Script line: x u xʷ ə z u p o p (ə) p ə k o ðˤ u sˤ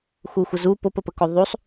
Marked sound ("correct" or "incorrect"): correct